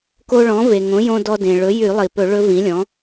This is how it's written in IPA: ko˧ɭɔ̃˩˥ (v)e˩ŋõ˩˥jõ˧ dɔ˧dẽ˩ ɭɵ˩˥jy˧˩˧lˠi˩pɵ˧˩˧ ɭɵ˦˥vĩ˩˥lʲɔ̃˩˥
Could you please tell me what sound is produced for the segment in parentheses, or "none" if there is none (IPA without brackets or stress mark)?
v